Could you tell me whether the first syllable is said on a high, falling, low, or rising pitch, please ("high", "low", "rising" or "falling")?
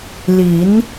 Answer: rising